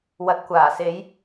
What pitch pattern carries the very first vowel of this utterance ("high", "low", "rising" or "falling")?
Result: low